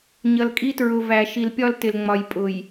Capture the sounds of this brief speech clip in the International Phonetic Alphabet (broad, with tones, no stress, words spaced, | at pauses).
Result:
ɲʌ˨lkʼi˦ tɹʊ˨væ˨ ʃi˨lpʲɒ˦ltɪ˨l ŋ͡mɒ˨j pʼʊ˨j